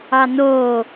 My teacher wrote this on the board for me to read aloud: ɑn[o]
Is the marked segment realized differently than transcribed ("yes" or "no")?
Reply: yes